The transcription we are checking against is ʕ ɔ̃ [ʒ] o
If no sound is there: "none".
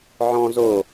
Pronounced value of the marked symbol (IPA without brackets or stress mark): z